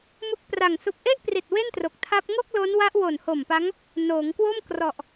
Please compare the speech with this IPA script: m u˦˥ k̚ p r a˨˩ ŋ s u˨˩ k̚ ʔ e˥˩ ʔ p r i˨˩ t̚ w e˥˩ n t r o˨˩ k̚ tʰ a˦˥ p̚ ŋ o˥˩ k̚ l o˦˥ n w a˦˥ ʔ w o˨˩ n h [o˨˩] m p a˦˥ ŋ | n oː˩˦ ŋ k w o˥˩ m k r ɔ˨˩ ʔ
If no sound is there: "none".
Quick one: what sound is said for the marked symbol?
o˨˩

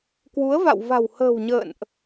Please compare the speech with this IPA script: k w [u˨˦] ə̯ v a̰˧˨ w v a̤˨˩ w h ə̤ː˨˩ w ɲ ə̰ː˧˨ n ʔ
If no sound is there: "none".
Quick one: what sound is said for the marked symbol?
u˨˦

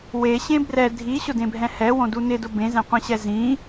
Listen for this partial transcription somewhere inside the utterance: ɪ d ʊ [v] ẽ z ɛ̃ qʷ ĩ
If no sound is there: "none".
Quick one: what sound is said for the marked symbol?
b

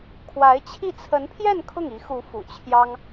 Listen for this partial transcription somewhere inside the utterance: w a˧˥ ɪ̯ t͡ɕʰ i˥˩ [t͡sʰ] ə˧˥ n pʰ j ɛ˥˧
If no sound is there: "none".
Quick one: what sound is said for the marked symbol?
t͡sʰ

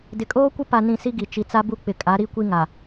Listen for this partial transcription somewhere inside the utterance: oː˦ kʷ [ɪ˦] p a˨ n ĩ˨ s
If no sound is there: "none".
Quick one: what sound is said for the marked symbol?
ɪ˦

